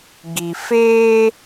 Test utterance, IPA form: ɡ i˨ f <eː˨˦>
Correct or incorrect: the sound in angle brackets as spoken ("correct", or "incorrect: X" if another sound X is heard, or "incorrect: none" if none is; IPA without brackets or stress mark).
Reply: incorrect: eː˦